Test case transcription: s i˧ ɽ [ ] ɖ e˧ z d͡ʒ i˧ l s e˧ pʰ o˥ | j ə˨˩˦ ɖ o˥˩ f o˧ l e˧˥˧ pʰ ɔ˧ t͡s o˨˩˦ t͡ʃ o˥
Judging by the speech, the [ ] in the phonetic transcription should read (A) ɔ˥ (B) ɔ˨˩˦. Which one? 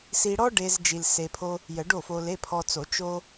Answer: A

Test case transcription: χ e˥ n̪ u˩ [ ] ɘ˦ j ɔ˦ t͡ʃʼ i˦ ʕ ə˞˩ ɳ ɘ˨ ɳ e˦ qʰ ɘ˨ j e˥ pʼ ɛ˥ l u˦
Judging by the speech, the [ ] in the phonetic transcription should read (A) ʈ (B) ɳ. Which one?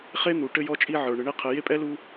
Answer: A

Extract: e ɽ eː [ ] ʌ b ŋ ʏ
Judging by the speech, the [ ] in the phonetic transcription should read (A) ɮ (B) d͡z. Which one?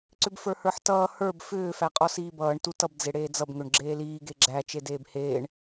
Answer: B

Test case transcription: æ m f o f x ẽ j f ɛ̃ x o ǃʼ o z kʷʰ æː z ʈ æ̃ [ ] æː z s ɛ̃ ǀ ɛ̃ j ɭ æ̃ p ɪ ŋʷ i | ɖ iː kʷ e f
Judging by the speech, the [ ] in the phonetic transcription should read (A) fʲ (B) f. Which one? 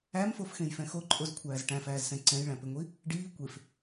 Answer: B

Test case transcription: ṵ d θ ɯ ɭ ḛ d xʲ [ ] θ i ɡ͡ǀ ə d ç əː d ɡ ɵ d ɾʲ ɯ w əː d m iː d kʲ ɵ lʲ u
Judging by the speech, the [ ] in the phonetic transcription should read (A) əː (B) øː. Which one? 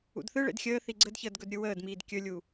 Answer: A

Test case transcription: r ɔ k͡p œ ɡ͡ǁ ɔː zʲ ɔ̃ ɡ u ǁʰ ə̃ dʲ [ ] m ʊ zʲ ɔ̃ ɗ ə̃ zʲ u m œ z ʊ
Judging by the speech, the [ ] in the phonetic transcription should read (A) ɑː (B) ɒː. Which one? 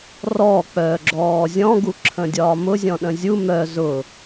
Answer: B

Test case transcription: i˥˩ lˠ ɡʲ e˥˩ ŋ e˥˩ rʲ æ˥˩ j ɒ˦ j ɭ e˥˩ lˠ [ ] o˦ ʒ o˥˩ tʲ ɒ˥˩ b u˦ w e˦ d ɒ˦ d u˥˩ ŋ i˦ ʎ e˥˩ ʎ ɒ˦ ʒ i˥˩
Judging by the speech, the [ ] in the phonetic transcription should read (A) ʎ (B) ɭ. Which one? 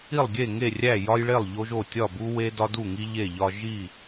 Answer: A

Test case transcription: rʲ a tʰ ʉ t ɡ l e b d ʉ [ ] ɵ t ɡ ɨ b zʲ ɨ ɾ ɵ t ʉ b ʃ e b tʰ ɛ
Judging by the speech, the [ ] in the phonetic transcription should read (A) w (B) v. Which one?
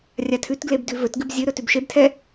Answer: B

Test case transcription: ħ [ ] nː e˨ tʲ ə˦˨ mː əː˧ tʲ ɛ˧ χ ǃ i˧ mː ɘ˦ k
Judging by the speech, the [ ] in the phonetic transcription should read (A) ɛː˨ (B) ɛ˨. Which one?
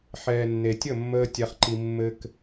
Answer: A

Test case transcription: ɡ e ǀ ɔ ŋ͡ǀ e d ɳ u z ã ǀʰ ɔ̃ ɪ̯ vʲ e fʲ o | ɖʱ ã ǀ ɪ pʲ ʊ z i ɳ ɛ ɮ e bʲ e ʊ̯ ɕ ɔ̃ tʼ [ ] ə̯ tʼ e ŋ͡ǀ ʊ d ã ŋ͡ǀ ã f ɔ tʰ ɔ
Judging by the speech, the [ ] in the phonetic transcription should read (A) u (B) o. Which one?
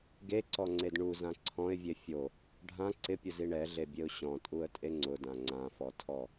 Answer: A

